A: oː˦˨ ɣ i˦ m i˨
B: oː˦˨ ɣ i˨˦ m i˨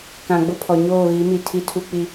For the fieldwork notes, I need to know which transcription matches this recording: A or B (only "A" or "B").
B